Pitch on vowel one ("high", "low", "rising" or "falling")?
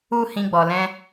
high